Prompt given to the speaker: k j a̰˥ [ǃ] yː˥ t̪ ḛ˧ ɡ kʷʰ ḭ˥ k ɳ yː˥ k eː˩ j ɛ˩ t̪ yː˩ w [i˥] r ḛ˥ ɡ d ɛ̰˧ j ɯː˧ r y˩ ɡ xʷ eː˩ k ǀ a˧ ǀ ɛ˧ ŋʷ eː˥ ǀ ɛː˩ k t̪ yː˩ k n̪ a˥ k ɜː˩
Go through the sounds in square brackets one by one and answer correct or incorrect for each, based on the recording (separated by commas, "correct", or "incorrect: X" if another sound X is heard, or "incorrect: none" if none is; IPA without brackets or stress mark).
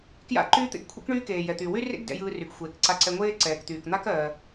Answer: correct, incorrect: y˥